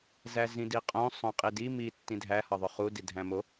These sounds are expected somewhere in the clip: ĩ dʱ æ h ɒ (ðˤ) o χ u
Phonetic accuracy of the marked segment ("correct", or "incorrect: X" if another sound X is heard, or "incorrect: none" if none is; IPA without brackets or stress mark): correct